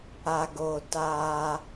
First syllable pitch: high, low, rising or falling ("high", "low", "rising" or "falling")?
low